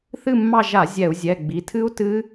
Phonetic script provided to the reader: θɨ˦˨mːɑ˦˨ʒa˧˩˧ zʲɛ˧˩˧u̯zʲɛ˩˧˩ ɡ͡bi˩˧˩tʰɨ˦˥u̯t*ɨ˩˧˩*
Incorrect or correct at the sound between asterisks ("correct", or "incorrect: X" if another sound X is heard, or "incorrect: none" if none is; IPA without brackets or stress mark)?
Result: incorrect: ɨ˦˥